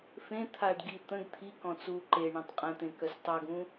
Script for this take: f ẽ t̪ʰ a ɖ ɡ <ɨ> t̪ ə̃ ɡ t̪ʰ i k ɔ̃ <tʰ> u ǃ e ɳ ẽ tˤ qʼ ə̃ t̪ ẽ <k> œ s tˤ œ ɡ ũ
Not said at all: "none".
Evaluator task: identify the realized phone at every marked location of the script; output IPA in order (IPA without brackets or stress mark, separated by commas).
i, t͡s, k